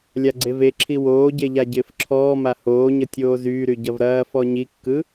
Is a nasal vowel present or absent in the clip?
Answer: absent